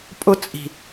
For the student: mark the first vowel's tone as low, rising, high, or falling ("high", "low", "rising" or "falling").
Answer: high